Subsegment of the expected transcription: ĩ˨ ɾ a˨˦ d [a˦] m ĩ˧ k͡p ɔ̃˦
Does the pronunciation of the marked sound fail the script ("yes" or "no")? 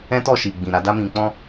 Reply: no